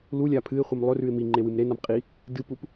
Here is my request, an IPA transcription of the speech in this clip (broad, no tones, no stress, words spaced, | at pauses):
lulʲa pʰɨɪ̯χʷɨm lˠɵrʉɪ̯ miŋ͡ǃewɨm ɾenam qʼi | dɨpup